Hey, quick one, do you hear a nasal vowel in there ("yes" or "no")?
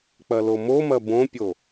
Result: yes